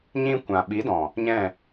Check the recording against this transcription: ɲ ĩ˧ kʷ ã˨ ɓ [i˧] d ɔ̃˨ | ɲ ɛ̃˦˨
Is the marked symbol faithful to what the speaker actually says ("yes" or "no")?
no